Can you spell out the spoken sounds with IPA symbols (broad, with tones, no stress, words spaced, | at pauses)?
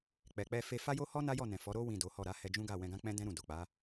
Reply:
k͡pɛ˨k͡pɛ˧fe˧ fa˦jo˦hɔ˦ na˦jɔ˦˨nɛ̃˨ fɔ˨˦ɾo˦ wĩ˦˨do˨˦hɔ˦˨ ɾa˨˦hɛ˧ d͡ʒũ˦ɡa˦˨ wɛ̃˧ɡã˦k͡pɛ̃˦dɛ̃˦ ɾũ˦˨ do˨k͡pa˨˦